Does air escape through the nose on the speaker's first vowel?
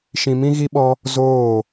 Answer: yes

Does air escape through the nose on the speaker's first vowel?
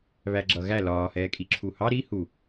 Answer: no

